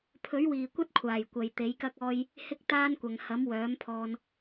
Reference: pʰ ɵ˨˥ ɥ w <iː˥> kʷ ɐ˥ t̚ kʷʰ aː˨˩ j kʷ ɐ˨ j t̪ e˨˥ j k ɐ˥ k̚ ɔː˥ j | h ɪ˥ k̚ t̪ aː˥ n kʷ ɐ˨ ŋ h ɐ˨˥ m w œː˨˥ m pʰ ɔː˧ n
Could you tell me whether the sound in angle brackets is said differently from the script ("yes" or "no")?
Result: yes